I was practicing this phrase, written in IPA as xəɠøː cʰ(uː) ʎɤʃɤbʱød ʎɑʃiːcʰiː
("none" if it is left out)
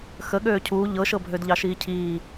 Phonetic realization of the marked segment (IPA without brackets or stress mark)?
uː